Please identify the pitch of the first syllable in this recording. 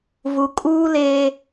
low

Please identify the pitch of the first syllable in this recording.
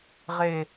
low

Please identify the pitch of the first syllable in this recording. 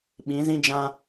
rising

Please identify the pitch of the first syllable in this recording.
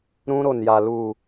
high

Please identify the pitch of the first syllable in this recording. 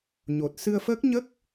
low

